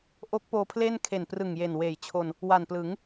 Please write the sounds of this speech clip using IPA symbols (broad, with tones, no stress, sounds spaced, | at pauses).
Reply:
ʔ o˦˥ k̚ p oː˧ pʰ l eː˥˩ n kʰ e˨˩ n p r ɯ˨˩ ŋ j e˨˩ n w eː˨˩ j t͡ɕʰ o˧ n | w a˨˩ n p l ɯ˩˦ ŋ